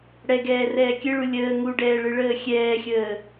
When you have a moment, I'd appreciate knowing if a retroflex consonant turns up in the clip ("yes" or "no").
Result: yes